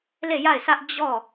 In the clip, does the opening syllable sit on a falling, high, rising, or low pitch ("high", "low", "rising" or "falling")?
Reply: falling